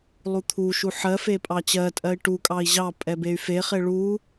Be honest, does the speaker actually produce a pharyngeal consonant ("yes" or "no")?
yes